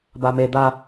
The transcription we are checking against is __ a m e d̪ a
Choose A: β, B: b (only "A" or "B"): B